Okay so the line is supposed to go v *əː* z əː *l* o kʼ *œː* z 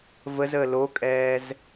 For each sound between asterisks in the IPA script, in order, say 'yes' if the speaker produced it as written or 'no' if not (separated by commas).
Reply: no, yes, no